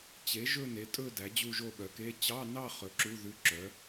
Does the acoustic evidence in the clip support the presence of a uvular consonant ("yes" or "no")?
yes